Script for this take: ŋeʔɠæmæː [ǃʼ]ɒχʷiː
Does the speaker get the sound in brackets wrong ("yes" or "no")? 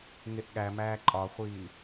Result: no